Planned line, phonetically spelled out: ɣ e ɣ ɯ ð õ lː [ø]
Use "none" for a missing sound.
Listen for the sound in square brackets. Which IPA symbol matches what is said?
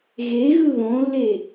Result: e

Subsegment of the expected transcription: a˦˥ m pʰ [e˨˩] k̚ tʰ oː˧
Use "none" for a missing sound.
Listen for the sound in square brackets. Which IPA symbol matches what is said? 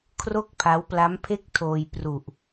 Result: e˥˩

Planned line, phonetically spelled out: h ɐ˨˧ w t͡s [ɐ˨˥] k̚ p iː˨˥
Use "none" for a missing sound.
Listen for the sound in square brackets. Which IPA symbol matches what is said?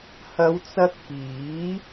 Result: ɐ˧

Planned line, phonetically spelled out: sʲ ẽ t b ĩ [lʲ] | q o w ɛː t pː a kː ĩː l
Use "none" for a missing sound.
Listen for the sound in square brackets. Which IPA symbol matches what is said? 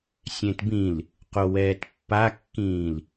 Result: l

